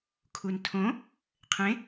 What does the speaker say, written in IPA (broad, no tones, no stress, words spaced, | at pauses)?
kʰuntʰõ | qʰẽ